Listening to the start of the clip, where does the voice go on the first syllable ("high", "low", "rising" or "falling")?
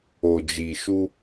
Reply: low